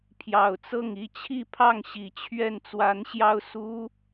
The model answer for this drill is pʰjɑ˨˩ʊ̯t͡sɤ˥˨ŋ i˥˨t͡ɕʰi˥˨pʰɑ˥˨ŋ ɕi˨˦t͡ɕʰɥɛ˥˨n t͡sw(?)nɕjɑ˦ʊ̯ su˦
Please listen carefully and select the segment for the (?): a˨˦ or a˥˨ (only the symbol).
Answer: a˨˦